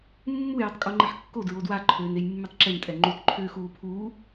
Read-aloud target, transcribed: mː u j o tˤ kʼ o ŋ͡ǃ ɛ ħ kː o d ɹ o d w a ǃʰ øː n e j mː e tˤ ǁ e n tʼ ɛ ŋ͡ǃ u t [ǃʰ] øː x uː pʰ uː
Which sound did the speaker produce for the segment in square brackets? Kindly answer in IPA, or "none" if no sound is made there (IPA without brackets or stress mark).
ǃʰ